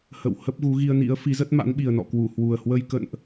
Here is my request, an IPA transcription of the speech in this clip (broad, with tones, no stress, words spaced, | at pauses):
hə̰˧˨w hə˦˥p̚ɣu˨˦ɣi˧ə̯nḭ˧˥ə̯ fi˨˦zə˦˥t̚ma̰˧˥n ɓi˨˩ə̯nɔ̰˧˨kwu˧˩ hwu˨˩ə̯hwə˧j kə̰˧˨nʔ